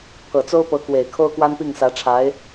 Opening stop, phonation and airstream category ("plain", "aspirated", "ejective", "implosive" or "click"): aspirated